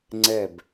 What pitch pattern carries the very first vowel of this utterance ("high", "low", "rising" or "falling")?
falling